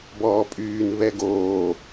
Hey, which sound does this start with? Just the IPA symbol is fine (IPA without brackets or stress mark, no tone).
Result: b